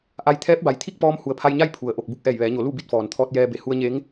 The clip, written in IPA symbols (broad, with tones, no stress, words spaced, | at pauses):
ʔa˧j t̪ʰɛː˧˥p̚ba˩jt̪ʰi˥˨k̚pɔː˧m hu˩ə̯pʰa˧jɲa˥˨j pʰu˩ə̯ ʔo˧˩k̚ bu˧k̚ʔɛː˧˩jʋɛː˩˧ɲo˩˧ lu˥˨bi˥˨t̚fɔː˩n t̪ʰɔː˧t̚jɛː˧be˧˩ hu˧ə̯ɲe˧˥ŋ